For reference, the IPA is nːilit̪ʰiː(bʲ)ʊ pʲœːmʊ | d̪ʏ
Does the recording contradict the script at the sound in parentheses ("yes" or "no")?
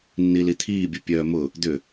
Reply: no